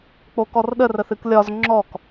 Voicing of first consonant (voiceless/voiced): voiceless